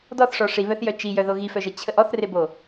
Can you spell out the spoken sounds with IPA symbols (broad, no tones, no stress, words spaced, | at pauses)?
dɔθʂɔ ʂiβœθjœ t͡ʃijœðo ɣifœʒə t͡ɕʰəʔ ɔθrebo